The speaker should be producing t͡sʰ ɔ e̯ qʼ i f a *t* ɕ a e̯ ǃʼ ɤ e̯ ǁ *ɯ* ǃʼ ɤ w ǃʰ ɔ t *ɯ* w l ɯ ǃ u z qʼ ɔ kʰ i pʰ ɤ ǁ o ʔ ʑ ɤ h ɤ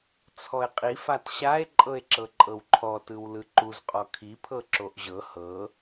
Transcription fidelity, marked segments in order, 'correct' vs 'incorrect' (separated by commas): correct, incorrect, correct